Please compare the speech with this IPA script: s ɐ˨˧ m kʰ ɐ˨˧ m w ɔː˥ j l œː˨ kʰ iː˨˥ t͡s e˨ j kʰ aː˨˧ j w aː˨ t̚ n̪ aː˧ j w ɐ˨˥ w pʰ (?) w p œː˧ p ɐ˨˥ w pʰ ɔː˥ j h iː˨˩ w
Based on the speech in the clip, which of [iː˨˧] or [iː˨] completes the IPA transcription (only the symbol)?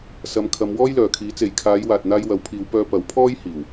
iː˨˧